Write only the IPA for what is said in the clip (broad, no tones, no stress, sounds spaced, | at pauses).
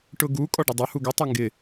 ʈ ʊ ɡ u kʼ ɔ ɖ ɪ dˤ ʊ h u ɡ ə tˤ e ŋ ɡ ɪ